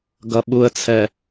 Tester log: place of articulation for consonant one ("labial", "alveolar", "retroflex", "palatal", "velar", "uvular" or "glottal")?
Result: velar